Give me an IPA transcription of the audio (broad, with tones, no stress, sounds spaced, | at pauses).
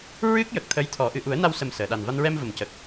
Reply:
ɹ ɨ˦˥ k̚ j ə˨˩ k̚ t̪ʰ ə˧˥ j t̪ʰ ɔ˨˩˦ ʔ ɨ˨˩˨ ʔ u˨˩˦ ə̯ n a˧ w s ə˨˩ m s əː˨˩˨ ɗ a˨˩ n v a˧ n ɹ ɛ˧ m v ə˨˩ m c ə˨˩ k̚